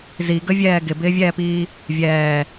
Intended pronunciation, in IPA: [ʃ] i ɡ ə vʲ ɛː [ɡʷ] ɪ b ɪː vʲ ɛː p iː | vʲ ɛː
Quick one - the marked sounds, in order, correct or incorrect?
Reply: incorrect, incorrect

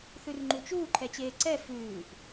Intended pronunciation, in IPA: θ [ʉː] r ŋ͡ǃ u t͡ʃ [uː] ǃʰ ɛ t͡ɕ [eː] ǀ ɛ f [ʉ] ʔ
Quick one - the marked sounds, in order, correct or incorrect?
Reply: incorrect, correct, correct, incorrect

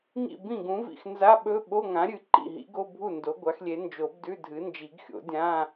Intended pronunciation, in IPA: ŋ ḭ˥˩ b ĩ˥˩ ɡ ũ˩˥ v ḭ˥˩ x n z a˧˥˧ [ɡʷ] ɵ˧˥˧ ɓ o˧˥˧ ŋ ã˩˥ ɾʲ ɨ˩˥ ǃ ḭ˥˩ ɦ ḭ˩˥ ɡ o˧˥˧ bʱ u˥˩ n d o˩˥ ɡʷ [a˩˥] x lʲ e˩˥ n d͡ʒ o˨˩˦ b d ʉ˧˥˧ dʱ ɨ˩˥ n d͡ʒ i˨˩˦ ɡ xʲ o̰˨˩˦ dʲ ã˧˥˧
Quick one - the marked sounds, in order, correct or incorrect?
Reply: incorrect, correct

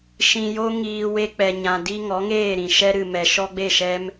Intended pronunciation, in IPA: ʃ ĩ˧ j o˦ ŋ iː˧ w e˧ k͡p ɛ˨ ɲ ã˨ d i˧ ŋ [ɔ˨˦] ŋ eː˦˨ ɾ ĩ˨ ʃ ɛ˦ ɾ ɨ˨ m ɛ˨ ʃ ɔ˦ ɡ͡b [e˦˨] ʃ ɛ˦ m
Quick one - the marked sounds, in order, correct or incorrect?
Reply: correct, correct

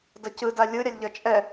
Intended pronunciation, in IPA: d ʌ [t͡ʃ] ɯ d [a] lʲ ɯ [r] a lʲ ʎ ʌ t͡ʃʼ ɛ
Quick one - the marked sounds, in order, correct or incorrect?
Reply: incorrect, correct, incorrect

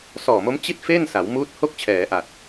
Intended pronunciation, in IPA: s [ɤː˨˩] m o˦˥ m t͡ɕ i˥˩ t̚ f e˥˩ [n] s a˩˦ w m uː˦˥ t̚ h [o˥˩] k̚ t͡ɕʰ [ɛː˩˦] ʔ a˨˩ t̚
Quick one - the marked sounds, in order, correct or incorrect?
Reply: incorrect, correct, correct, correct

